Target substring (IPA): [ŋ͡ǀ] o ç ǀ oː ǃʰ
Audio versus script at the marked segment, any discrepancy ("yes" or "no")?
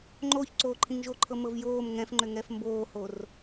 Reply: yes